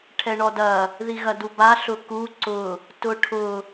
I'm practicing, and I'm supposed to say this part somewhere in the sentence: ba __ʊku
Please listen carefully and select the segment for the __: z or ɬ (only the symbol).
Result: ɬ